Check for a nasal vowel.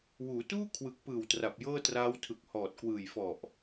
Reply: absent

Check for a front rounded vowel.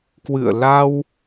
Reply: absent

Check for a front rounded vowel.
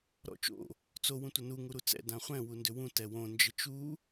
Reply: present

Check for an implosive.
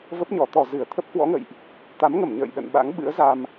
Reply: present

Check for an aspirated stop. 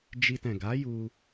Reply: absent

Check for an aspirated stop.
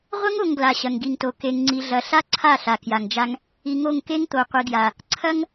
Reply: present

